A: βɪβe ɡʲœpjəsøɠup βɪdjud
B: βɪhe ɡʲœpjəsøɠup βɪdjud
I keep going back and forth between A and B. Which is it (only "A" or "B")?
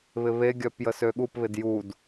A